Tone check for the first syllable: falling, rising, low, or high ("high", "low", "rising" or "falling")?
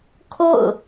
falling